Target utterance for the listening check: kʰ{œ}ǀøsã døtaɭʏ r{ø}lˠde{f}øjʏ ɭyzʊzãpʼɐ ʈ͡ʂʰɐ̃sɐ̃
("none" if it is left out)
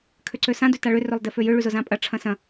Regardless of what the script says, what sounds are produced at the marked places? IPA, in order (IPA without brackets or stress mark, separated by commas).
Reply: ø, ø, f